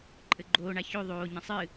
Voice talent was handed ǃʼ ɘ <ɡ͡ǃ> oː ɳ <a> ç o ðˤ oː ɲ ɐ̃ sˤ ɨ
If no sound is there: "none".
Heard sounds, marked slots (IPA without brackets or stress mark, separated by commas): ɡ͡ǃ, a